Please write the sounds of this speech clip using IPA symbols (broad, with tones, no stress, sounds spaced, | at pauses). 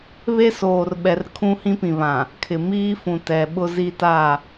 β e˦ s oː˨ r ɓ ɛ˨ r kʰ ũ˦ h ĩ˦ p ĩ˨ β ã˨ | kʰ ɪ˨ m iː˦ f ũ˨ t ɛ˨ ɓ ʊ˦ z i˦ t a˦˨